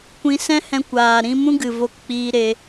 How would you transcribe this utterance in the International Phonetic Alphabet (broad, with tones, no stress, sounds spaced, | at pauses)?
kʷ ĩ˧ s ɛ̃˦ h ɛ̃˧ kʷ aː˨ ɾ ĩ˧ m ũ˦ ɡ ɨ˨ v o˧ k k͡p iː˧ ɾ e˧